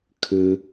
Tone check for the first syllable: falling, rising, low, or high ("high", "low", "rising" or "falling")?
low